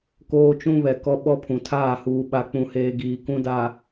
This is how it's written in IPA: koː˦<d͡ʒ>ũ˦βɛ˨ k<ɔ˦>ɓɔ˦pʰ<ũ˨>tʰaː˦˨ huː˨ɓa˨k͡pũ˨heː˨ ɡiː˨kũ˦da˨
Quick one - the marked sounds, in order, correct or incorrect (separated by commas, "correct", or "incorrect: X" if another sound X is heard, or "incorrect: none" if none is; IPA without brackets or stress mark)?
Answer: incorrect: t͡ʃ, correct, correct